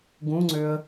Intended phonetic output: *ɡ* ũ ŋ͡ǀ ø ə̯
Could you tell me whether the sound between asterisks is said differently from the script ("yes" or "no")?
no